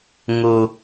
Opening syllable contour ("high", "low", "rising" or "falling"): low